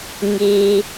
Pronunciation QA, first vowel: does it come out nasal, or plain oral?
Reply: oral